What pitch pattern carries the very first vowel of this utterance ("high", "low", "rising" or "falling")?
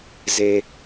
low